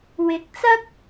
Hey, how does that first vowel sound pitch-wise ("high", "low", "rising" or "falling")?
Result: rising